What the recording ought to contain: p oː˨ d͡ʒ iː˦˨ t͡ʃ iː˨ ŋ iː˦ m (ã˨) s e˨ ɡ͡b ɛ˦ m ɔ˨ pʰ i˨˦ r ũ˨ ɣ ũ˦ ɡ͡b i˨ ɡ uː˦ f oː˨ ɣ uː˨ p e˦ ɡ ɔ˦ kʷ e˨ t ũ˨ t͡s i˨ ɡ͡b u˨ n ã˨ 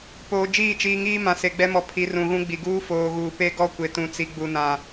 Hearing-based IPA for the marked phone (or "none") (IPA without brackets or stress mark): ã˨